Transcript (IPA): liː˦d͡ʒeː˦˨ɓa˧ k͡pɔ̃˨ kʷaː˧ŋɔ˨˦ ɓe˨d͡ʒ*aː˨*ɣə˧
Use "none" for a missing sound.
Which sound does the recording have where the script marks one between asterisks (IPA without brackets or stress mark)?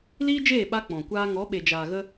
aː˨